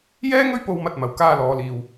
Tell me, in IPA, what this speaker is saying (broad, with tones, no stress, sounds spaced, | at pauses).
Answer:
j ɛː˥ ŋ ɵ˥ ɥ p o˧ w m ɐ˧ t̚ m ɐ˨ w k aː˧ l ɔː˨˧ l iː˨ w